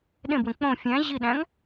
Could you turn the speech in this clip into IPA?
ɗẽbwẽ k͡põ fʲæ̃ ʑiɗæ̃ŋ

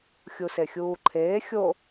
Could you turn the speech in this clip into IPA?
xʲusexʲuːǃʰeː xʲo

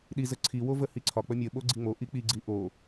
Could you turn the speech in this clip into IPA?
ɗizə ǀʰiwo vəhiǀʰɒ k͡pəmʲə ɓoɡ͡ǀiŋ͡mo ʔik͡piɡ͡ǀi ʔo

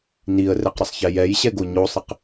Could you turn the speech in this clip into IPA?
niə̯rɛqɾəsˤçɛ jɛjɕɛɡo ɲosˤɪq

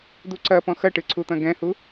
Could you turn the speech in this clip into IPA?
d̪uǀɐpɔ̃ xɐʈɨ ǀʰut̪ɐ̃ɡɛ̃hu

